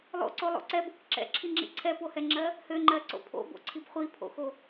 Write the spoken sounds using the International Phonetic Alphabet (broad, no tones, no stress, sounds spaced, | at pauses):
lˠ o̰ ǀ o lˠ o̰ ǀ ɛ b o k ǁ ɛ̰ ǁʰ i ŋ͡ǁ ḭ ǀʰ ɛ p o h ɛ ŋ͡ǁ ɜ | h ø ŋ͡ǃ ɜ ǀ o̰ pʰ o̰ b o̰ ǀʰ i b χʷ i pʰ o̰ x o